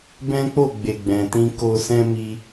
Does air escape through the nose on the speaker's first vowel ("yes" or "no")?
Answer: yes